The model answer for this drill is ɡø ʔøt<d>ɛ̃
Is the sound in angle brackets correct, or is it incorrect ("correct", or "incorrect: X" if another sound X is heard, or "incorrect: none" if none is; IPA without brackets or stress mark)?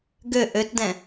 correct